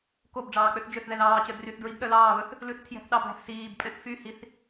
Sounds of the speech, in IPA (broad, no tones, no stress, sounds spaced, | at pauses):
k o b ɖ͡ʐ ɑː k͡p ø θ d͡ʒ ø θ ð ɛ ð ɑː t͡ɕ œ d r y θ d ɹ i b ɗ œ l ɑː β ɵ θ | l ʉ θ tʰ j ɛ̤ θ ɗ ɑ b l æ̤ θ s iː b pʼ ɛ̃ θ f y h i θ